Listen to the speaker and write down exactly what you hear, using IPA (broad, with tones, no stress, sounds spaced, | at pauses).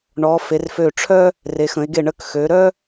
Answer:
ɳ ɔ˩˧ f e˩˧ r f ø˧˩ ʈ͡ʂʰ œ˥ | r e˩˧ x ə̃˩˧ e̯ ɡ e˧˩ ɳ ə˧˩ k x ø˩˧ ɾ œ˥